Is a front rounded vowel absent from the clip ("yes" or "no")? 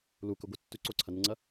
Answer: yes